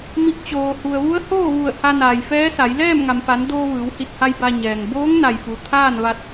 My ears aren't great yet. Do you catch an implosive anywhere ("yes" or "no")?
no